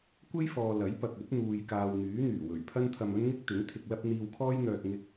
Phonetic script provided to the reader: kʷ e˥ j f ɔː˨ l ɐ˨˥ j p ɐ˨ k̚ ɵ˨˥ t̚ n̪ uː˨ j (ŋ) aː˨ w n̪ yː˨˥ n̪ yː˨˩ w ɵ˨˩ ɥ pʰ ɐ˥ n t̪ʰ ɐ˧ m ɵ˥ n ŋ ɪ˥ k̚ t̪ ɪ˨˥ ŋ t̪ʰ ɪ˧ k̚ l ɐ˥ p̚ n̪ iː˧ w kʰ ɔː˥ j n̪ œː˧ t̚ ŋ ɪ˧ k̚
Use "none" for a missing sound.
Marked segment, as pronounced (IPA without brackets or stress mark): k